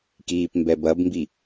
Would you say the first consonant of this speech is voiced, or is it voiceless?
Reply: voiceless